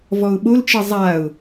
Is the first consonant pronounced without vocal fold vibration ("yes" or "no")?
no